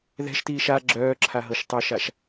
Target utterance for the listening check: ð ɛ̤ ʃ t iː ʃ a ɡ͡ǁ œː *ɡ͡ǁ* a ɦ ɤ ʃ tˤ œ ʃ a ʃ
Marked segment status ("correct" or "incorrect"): incorrect